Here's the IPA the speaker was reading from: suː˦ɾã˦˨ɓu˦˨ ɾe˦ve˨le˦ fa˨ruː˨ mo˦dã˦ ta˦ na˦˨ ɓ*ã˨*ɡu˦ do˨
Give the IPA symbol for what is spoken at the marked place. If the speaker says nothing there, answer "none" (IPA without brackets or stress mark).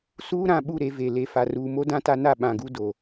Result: ã˨